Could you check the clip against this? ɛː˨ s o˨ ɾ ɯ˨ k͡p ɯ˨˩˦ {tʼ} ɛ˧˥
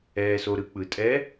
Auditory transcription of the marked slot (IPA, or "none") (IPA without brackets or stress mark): tʼ